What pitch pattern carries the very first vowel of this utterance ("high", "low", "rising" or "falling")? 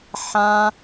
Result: high